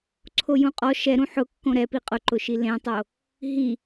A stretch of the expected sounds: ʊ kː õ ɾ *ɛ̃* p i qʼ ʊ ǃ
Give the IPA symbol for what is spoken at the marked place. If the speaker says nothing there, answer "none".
ɛ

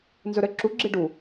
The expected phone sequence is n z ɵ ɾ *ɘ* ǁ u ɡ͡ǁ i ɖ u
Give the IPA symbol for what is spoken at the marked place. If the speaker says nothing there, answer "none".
ɘ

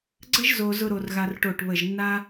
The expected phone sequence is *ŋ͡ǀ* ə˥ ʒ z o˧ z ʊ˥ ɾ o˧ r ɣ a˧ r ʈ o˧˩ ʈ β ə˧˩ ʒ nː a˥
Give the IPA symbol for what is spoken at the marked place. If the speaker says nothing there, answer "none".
ɡ͡ǀ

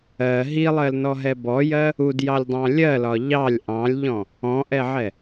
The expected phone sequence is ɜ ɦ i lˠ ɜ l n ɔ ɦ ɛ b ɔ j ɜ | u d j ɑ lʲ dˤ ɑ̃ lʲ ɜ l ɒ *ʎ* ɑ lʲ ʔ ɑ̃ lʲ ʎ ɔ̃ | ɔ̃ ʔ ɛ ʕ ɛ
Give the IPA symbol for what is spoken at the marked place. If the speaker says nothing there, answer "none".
ʎ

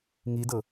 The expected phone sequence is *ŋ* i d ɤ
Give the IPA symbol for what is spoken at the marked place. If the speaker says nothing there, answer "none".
ŋ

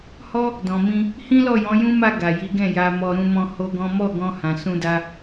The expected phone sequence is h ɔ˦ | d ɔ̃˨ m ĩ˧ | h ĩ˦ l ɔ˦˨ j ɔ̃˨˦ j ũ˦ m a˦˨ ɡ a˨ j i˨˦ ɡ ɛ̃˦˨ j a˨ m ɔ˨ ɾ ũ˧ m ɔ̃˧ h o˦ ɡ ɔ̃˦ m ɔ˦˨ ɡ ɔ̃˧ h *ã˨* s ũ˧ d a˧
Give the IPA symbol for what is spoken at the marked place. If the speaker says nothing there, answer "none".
ã˨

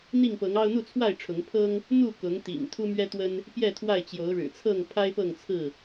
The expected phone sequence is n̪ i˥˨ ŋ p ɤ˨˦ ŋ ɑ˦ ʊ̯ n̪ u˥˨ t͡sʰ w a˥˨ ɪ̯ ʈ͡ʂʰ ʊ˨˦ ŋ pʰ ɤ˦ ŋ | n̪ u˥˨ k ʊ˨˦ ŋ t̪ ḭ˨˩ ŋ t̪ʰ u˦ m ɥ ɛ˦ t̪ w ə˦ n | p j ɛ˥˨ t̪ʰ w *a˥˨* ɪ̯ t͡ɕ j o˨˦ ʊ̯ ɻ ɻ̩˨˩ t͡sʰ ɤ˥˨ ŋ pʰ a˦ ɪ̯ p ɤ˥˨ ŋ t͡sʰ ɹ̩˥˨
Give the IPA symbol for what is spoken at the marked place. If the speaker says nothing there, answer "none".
a˥˨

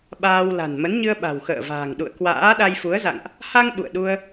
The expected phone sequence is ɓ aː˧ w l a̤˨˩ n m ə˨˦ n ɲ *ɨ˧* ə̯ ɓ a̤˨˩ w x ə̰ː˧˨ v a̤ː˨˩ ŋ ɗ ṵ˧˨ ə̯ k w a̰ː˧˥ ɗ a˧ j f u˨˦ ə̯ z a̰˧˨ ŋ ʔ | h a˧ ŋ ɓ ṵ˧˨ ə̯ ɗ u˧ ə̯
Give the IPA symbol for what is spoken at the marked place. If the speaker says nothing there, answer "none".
ɨ˧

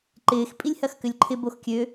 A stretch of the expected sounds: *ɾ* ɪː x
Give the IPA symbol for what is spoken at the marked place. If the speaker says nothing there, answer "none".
ǃ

